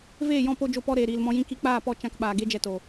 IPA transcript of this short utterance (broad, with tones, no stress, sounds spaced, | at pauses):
v eː˦˨ j ɔ̃˧ p o˧ d͡ʒ o˧ p ɔ˧ ɾ eː˨ ɾ iː˨ l m ɔ̃˧ j ĩ˧ k i˧ k͡p aː˦˨ p ɔ˦˨ t͡ʃ ã˧ k ɓ aː˨ ɡ e˦ d͡ʒ ɛ˧ t o˨